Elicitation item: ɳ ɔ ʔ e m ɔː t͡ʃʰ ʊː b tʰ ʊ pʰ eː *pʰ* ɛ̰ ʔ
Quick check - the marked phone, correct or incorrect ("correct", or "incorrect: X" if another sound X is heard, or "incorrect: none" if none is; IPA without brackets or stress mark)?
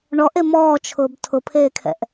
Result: incorrect: kʰ